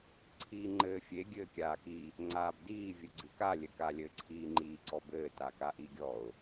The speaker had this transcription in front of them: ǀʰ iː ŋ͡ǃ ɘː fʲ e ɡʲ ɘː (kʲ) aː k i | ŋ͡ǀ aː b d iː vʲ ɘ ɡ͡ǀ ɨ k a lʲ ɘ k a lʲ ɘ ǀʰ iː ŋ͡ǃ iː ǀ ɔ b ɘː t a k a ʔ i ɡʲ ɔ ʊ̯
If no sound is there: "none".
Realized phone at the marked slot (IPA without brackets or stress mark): kʲ